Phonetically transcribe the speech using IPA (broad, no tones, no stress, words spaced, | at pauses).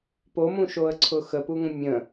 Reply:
pomũʃoə̯ ǀʰʊxəpuŋə̃ mʲə̃